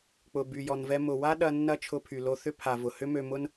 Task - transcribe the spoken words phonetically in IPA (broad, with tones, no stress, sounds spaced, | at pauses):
k͡p ʊ˩ b y˩ j ɔ˩ n v ɛ˧ m ʊ˩ w a˥ ɗ ɐ˧ nː ɐ˥ t͡ʃʰ ʊ˧ pʰ y˩ l o˧ θ ʏ˥ pʰ a˩ v ʊ˩ h ʏ˥ m ø˧ m ʊ˥ n